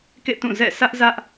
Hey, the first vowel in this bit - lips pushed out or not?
no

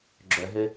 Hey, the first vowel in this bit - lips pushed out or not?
yes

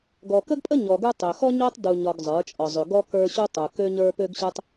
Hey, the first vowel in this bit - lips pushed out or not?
yes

